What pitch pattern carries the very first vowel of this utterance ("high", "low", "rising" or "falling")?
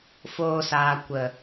high